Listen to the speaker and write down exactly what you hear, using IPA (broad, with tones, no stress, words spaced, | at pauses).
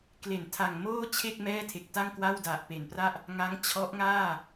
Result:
kle˩˦ntʰa˨˩ŋ moː˥˩ t͡ɕʰe˥˩k̚ mɛː˥˩tʰe˨˩k̚ta˥˩ŋkwa˥˩w da˨˩ʔpe˨˩npra˥˩ʔ | ŋa˦˥ŋ t͡ɕʰɔ˦˥ʔŋaː˥˩